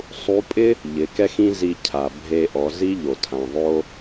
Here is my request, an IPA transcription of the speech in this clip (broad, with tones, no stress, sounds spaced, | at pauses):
sˤ u˧˥ pʼ ɪ˥ | ʎ ɪ˩˧ k ɛ˥ x ĩ˥ z i˧ cʰ a˩ bʱ e˧ ʔ ɔ˩˧ z i˥ ʎ o˩ tʰ ã˩ ðˤ o˧